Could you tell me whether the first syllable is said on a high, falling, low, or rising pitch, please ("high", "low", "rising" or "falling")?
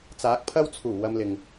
rising